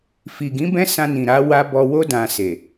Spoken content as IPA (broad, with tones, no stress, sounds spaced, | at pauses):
f i˨ ɡ ĩ˨˦ b ɛ̃˦ s ã˧ n ĩ˨ ɾ a˨˦ w a˦ b ɔ˧ w o˦ d ã˧ s e˨